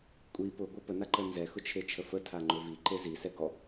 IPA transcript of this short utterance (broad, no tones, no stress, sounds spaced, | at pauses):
kʷʼ i p ʊ ɡʷ ə p ə n a ǃ ə n z ɛ x ʊ t͡ʃʰ e t͡ʃʰ ə f ə tʰ a ŋ͡ǃ ʊ v i ǃ e z i s ɛ ɡ ɔ